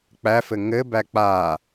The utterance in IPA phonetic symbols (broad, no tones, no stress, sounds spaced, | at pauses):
k͡p æ f ɘ ŋ ɘ b æ k͡p a